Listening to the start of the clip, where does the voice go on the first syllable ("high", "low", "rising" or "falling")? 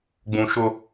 low